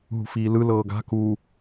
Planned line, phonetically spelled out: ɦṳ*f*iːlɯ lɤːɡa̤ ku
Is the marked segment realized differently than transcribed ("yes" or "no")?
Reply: no